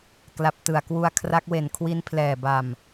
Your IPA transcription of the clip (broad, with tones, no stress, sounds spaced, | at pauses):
k l a˨˩ p̚ t ɯ˨˩ a̯ k w u˧ a̯ kʰ r a˦˥ k̚ w e˨˩ n kʰ w i˦˥ n pʰ l ɛː˨˩ b a˨˩ m